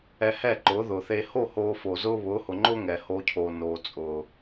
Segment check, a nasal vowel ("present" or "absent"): absent